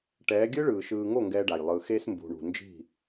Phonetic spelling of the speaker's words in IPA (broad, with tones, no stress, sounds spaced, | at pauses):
ʈ ɛː˨˦ ɡʲ ɯ˦ ɭ ɯː˨ ʃ ɯː˨ ŋ o˦˨ ŋ ɡ ɛː˦ ɖ a˨ j lˠ ɯ˨ x e˦ s m b ṳ˨ ɳ ṳ˨ n d͡ʒ i̤˦˨